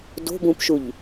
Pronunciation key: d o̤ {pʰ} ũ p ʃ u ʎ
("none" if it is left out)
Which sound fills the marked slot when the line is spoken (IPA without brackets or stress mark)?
b